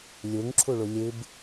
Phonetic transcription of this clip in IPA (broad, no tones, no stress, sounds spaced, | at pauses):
lʲ u ŋ ǁʰ u ɭ u lʲ ɨ b